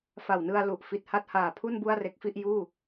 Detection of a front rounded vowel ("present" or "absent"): absent